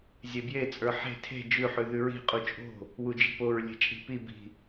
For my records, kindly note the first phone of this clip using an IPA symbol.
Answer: zʲ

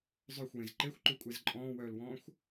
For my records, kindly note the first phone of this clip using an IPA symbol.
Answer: zˤ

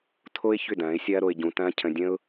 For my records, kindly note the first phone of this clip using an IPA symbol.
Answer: tʰ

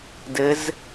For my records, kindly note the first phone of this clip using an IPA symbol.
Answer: d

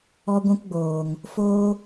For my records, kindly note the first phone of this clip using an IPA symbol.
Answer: ɔ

